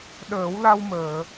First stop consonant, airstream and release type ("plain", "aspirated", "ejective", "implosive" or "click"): implosive